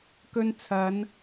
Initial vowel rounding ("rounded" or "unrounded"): rounded